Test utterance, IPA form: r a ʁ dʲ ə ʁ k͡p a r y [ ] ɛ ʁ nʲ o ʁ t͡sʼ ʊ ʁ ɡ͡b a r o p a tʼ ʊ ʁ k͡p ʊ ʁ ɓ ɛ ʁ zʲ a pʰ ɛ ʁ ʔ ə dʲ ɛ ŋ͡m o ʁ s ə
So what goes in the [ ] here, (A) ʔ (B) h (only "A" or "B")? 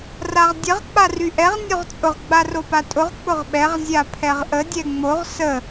A